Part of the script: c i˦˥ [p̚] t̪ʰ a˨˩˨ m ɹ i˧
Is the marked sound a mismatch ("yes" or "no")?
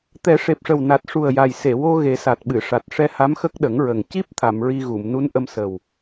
no